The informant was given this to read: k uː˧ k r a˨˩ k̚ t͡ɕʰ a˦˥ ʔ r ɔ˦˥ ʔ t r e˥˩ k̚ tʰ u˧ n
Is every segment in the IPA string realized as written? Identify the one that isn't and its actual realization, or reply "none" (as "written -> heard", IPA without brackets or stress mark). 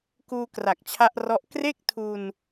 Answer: t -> k